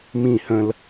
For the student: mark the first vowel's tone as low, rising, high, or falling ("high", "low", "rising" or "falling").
falling